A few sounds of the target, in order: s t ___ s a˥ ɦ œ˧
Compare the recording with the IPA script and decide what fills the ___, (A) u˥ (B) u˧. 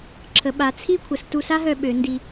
B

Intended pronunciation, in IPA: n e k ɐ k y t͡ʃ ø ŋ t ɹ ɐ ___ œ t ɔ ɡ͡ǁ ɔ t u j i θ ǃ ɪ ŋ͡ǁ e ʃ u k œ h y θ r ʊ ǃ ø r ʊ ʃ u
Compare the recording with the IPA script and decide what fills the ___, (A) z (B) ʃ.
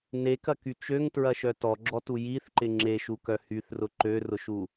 B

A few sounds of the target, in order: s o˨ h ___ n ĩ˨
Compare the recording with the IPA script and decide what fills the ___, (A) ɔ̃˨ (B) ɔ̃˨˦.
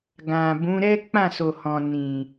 A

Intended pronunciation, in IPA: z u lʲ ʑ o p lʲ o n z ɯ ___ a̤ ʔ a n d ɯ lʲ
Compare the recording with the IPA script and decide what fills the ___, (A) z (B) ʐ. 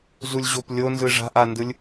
B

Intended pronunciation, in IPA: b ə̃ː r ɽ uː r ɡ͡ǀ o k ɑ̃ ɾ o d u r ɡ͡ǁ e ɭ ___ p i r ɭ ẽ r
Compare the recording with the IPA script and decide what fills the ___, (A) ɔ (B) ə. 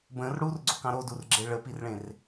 B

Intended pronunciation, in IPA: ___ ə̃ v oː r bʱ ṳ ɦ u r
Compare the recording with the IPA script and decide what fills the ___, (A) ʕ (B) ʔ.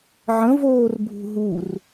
A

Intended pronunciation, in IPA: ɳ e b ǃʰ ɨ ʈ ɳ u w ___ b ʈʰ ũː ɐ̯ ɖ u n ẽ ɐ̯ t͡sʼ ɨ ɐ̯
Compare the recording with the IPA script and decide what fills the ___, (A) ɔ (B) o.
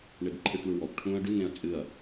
A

